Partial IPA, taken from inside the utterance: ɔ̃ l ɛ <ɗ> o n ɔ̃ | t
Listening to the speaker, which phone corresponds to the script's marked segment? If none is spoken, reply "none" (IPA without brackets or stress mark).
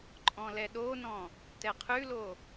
ɗ